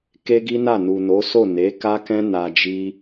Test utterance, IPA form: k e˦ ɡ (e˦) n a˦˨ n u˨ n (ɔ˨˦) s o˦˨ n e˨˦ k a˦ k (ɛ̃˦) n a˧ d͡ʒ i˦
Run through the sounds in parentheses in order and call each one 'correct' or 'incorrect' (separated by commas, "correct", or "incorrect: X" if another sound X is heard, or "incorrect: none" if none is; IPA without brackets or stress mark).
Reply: incorrect: i˦, incorrect: o˨˦, correct